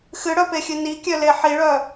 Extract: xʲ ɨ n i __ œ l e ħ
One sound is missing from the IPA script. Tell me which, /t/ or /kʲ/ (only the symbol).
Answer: kʲ